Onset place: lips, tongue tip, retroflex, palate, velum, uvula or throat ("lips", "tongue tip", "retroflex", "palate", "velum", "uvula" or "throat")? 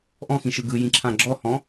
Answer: throat